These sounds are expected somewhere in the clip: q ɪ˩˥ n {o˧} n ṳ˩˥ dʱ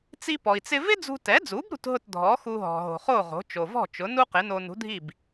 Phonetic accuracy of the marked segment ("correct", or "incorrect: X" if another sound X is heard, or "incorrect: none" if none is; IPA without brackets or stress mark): correct